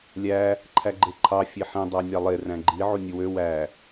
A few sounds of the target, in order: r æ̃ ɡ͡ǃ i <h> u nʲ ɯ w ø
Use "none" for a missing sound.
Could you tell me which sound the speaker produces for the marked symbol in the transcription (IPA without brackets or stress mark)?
ʕ